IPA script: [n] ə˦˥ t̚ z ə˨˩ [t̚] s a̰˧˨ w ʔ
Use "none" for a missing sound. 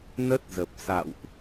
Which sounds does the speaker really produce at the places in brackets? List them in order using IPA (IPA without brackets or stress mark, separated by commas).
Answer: n, p̚